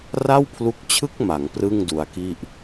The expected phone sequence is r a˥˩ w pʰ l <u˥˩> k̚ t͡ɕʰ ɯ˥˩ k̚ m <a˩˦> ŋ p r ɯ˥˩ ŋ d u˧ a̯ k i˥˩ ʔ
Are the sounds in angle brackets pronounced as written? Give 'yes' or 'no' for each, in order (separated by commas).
no, yes